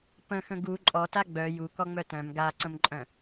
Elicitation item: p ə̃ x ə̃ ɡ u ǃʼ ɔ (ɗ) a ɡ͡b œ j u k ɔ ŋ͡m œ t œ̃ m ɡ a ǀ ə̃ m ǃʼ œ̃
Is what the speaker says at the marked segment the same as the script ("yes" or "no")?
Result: no